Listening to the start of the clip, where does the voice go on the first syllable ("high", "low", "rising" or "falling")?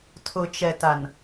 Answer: low